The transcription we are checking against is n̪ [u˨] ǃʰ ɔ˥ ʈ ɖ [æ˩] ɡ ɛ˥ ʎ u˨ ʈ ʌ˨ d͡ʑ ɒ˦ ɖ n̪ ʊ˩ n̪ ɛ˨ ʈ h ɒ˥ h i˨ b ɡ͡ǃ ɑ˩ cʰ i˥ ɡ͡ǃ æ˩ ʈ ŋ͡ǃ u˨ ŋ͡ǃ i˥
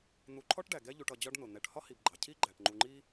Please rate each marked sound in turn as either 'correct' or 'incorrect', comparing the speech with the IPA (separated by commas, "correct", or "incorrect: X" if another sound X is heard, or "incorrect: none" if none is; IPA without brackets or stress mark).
correct, correct